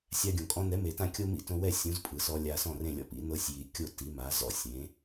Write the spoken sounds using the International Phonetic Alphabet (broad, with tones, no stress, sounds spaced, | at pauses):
sʲ a˧ ɡʲ õ˩ kʼ ɔ̃˧ n ɛ˩˥ m e˩ t ã˥˩ kʲ o˥ m ḭ˥˩ t õ˧ w ɛ˥˩ sʲ ũ˩˥ z pʼ ɯ˩ s ɔ˧ lʲ a˧ s ɔ̃˥˩ r ẽ˥˩ lʲ ɔ̰˥ p ḭ˩˥ n ɤ˧ sʲ j i˩ kʲ o˥˩ t i˩˥ m a˩˥ z ɔ̰˥˩ sʲ ẽ˩˥